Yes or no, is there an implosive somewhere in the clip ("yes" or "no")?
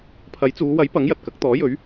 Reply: no